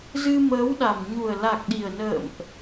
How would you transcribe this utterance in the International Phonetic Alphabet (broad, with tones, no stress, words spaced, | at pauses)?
zɨ˧məː˨˦wɗa˨˩m ɲu˨˩ə̯la˨˩k̚ɗi˨˩ə̯nə̰ː˧˨mʔ